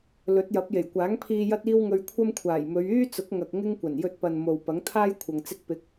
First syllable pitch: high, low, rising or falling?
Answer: rising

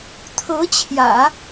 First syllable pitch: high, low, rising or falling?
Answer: rising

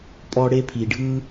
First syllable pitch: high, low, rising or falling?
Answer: high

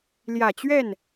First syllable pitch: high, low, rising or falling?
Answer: low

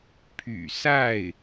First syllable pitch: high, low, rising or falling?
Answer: low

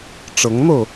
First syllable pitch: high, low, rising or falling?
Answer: rising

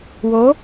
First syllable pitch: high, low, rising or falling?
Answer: rising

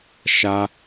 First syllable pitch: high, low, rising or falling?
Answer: high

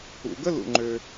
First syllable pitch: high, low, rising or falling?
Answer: low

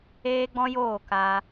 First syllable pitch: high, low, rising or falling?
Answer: high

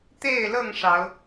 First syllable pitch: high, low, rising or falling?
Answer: falling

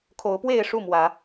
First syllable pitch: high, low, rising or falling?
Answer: rising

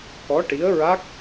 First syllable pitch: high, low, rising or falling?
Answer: rising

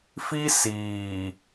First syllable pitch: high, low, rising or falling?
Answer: high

